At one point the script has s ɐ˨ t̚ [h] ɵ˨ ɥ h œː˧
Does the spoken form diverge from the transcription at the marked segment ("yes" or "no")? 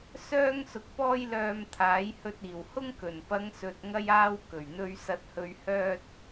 no